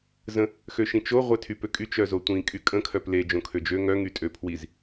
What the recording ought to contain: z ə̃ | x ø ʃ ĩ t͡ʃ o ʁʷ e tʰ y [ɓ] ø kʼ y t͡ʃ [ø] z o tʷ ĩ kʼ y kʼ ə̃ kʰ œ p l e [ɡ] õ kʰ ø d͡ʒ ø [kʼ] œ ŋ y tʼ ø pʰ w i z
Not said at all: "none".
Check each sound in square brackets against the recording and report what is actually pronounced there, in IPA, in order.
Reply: p, œ, d͡ʒ, ŋ

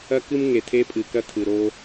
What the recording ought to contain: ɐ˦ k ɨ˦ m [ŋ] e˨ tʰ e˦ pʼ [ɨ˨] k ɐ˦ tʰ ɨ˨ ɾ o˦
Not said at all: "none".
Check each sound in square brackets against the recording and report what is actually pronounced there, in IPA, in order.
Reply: ŋ, ɨ˨

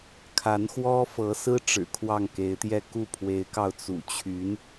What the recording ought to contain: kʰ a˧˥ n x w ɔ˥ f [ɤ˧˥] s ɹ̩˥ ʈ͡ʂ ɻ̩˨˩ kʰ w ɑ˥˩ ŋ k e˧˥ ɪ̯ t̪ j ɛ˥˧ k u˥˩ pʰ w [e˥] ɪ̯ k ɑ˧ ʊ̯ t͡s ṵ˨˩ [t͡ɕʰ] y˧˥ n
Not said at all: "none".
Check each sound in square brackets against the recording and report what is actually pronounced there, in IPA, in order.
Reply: ɤ˧˥, e˧˥, t͡ɕʰ

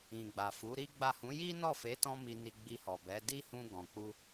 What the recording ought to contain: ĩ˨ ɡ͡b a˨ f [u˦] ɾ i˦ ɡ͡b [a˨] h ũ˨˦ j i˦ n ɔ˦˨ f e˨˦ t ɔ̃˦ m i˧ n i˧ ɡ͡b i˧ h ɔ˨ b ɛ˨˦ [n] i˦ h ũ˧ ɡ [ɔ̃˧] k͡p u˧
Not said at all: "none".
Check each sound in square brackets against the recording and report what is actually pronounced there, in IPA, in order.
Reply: u˨˦, a˦˨, d, ɔ̃˨

